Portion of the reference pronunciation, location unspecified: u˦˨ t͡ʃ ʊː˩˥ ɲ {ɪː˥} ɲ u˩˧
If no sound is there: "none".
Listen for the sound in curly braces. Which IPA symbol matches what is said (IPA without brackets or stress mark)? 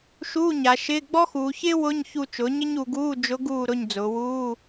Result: ɪ˥